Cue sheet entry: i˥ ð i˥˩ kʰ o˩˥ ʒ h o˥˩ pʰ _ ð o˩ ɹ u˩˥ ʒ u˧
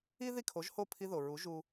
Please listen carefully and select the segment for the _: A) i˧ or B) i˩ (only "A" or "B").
A